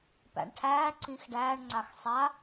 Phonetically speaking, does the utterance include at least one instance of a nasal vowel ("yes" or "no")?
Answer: yes